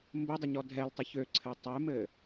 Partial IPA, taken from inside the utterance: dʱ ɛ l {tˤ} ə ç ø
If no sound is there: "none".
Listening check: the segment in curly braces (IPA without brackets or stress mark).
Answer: tˤ